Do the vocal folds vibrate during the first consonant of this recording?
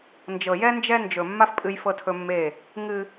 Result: yes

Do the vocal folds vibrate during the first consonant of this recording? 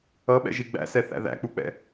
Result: yes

